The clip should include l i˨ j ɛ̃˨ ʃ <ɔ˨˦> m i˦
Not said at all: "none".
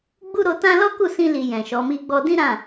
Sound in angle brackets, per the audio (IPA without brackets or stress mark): ɔ˨˦